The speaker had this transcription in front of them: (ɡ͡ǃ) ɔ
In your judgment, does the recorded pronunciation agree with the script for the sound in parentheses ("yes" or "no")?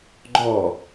yes